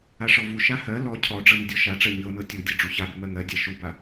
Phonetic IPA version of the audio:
aʂɔvuʃa hɜ lɔ cʰɔɖ͡ʐɤ nɪdʲɔʃaʈ͡ʂɜ ɲɤ nɤtʲudʲɤ ɖ͡ʐuçabɪ mɜŋɜdʲa ʃuba

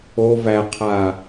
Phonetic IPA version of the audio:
ov æqʰa

